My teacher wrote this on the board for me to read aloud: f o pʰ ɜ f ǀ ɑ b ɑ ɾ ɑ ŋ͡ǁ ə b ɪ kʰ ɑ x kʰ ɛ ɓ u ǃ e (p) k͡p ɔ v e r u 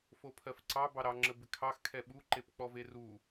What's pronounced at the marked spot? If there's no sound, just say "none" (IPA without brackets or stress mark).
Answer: p